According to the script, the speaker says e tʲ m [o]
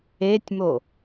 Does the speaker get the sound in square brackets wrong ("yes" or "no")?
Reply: no